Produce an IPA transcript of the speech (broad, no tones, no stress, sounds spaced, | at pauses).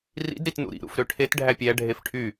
r ḭ d ɾ i t n ṵ ɾ ḭ ɾ ṵ f ɾ ø ʈʰ e t ɖʱ æ pʲ æ ɖʱ e f ʈʰ y